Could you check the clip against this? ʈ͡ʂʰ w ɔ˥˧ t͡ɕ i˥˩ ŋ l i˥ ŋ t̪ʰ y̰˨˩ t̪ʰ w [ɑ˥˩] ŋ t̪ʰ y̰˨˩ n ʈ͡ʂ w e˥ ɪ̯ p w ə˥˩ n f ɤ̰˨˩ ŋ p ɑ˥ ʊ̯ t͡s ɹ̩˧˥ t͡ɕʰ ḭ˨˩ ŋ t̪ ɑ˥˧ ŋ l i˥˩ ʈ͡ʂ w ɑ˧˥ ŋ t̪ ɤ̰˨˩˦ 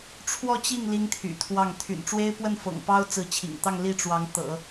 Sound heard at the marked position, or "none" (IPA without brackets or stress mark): ɑ˥˩